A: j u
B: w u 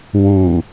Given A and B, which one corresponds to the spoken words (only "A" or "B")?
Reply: B